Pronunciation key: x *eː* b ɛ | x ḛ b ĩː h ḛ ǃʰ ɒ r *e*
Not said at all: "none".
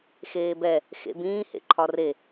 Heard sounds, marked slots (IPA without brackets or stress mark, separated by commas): eː, e